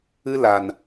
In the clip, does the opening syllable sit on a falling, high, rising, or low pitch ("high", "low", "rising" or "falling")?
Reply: high